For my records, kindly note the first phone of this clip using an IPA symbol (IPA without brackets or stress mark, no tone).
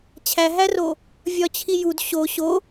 t͡ɕʰ